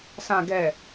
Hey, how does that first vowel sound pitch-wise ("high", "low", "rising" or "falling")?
low